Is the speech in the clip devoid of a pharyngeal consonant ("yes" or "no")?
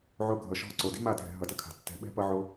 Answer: no